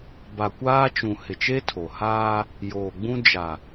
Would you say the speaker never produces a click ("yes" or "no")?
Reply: yes